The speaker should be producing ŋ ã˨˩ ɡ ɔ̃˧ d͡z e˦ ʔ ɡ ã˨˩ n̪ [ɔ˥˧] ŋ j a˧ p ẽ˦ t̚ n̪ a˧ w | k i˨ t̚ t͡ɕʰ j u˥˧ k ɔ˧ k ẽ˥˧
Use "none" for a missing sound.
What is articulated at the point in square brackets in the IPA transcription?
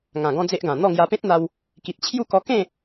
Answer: ɔ˥˧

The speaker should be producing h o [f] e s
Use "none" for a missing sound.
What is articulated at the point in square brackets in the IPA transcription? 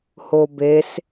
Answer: b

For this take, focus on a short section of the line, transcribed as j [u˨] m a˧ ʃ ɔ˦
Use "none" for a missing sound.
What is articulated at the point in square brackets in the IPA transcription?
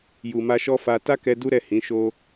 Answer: u˨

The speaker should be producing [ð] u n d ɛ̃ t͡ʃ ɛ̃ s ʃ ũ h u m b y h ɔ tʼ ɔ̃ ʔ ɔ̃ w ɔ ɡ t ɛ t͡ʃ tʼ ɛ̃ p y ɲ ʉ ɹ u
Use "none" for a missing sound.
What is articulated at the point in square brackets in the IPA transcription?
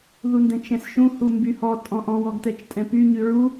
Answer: ð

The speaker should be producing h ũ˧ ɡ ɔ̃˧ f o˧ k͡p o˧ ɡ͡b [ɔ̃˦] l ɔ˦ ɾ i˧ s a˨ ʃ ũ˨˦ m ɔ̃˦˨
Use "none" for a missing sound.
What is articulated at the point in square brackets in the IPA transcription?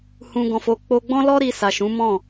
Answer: ɔ̃˦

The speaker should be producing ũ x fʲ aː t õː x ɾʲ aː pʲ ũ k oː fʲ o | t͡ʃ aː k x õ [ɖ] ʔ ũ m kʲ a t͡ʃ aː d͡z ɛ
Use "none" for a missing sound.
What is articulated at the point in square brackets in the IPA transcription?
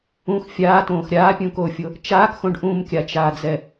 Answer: ɖ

